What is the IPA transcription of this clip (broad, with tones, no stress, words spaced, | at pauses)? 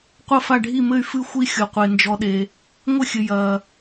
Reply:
qʷɐ˦˨fa˦˨ɖʱi˦˨mɘ˦˨y̯ fɨ˦˨ xʷi˦xʲo˨qʷe˨ nd͡ʒɔ˨ɗe˨ | ŋʷɘ˦˨xʲɘ˨ jɐː˨